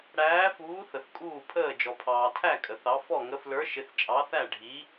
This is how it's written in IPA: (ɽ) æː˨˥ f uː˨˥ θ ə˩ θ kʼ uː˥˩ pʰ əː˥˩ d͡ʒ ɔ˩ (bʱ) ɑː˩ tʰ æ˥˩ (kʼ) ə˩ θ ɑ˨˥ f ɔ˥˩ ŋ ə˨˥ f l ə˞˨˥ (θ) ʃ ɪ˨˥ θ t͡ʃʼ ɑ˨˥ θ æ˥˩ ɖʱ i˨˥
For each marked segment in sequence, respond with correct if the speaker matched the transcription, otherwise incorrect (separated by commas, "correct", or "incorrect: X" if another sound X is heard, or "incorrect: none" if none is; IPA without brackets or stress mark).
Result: correct, incorrect: pʰ, correct, incorrect: none